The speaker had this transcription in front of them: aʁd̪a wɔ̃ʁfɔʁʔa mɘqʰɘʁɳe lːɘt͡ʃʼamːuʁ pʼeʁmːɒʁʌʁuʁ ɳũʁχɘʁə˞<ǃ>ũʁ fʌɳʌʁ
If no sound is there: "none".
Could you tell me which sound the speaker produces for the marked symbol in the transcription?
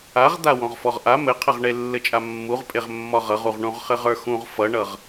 x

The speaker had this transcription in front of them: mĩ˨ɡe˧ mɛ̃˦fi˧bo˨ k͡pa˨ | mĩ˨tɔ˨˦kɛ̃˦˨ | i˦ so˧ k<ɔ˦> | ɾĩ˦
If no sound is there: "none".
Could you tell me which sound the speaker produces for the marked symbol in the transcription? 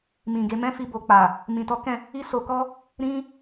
ɔ˦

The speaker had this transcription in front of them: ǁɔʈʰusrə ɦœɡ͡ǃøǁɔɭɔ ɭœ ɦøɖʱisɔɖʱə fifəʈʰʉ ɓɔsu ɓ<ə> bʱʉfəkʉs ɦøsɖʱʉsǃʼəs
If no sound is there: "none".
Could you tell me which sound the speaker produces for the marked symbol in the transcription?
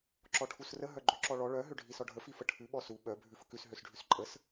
œ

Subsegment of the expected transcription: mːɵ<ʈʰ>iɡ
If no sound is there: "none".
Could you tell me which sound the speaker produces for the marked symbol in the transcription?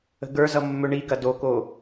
ɳ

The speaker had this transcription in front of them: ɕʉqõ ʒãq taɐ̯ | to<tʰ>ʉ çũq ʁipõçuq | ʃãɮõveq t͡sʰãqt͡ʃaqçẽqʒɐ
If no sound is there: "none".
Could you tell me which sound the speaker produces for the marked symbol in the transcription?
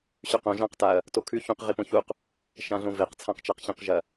kʰ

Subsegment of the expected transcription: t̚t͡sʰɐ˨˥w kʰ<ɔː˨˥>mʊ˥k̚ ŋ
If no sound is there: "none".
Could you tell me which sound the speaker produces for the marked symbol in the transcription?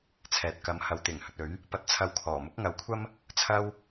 ɔː˨˩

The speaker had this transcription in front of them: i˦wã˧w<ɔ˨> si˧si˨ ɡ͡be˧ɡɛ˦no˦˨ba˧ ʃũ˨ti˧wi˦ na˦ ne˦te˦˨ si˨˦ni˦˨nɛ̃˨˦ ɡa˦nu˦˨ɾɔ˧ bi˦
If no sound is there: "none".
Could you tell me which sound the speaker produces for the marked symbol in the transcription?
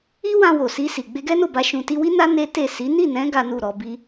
o˨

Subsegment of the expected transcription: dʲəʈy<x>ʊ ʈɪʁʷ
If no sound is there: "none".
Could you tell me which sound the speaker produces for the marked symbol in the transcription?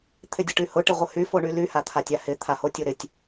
h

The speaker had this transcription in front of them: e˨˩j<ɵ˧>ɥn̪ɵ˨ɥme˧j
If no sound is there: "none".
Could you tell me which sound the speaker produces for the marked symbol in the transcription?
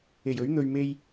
ɵ˨˥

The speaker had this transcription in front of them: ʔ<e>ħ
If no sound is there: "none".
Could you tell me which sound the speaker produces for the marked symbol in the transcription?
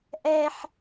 ɛ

